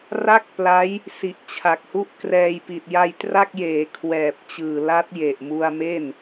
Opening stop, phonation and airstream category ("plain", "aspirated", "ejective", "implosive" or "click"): plain